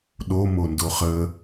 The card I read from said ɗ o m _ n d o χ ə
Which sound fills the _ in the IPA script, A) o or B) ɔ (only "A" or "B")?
A